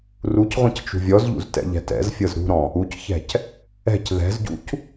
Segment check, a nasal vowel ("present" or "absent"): present